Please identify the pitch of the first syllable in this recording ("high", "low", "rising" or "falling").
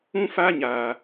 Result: high